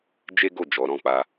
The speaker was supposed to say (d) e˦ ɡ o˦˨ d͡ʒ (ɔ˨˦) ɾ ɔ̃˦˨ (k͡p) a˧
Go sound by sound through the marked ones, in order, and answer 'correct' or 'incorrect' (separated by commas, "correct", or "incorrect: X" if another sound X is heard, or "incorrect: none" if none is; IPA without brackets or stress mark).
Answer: incorrect: d͡ʒ, correct, correct